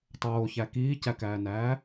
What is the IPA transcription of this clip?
tˤ oː ç æ k iː c æ k æː n æː

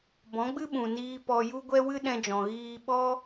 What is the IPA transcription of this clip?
b ɔ̃˨˦ ɡ͡b ɨ˦ ɓ ũ˨ n iː˧ p ɔ˧ j u˦ ɡʷ ɛ˦ w ɨ˦ ɗ ɛ̃˧ d͡ʒ ɔ̃˨ ɣ iː˧ ɓ ɔ˦

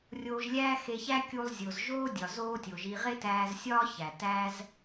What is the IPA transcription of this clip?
rʲ oː˧ ʒ lʲ æː˦ x e˧ ç æ˦ kʲ u˧ lˠ zʲ o˨ z ʒ oː˦ dʲ ɒ˨ z oː˦ tʲ o˨ ʒ i˧ ʁ e˦ t æː˧ z sʲ ɒː˦ ç æ˨ t æ˦ z

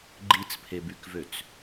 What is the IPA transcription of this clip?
ɡ͡ǃ i t͡s pʰ e b y k v ø t͡s

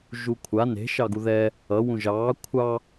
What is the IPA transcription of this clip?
ʒ u kʷʰ a n e̤ ʃ ɑ ɡ u ð ɛ | ʌ w ũ ʒ ɑː kʷʰ ɑ

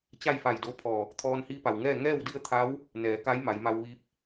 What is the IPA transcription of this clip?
t͡ɕ a˥˨ j f a˧˩ j d o˧˥ pʰ ɔː˧˩ | t̪ʰ ɔː˧ n h iː˧˥ p a˩ w ŋ ɛː˥˨ ŋ ɛː˥˨ w d i˥˨ ə̯ t̪ʰ a˧˥ w | n ɛː˩˧ k a˧˥ j m a˩˧ j m a˧ w ʋ iː˧˥ p̚

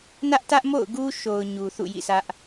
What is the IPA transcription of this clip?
n ä˦ ʔ t ä˦ ʔ m o̰˦˨ ʊ̯ ɡ u˦ ʃ o˨ ʊ̯ ɲ u˨ θ ṵ˦˨ j ḭ˦˨ sʰ ä˦ ʔ

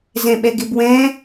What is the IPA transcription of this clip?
z ɛ̃ ɓ ɛ ɡ ɪ b w ɛ̃

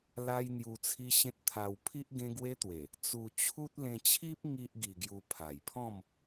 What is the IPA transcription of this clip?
l a˦ j n̪ j u˧ t͡sʰ i˦ ɕ ẽ˦ t̚ t̪ʰ a˧ w pʰ i˦ ʔ ɡ ẽ˦ ɡ w e˦ t̪ w e˨˩ | t͡s u˧ t͡ɕʰ u˦ t̚ l ẽ˧ t͡ɕʰ i˦ p̚ ŋ i˦ ʔ ɡ i˧ ɡ j u˧ pʰ a˨˩ j pʰ ɔ̃˥˧ m

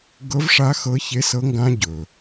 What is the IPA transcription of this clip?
ɡ ɤ˦˥ v ʂ a˦˥ x ɤ˦˥ ç e˦˥ s ɤ˦˥ ŋ ɡ ã˦˥ ɟ ɵ˨

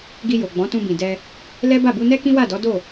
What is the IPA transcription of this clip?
ɡ i˧ j o˨ ɡ͡b ɔ̃˨˦ t ũ˧ b ĩ˨ d ɛ˧ | l ɛ˦ b a˦˨ b u˧ n ɛ˦ k ĩ˦ w a˦˨ d ɔ˨˦ d o˦˨

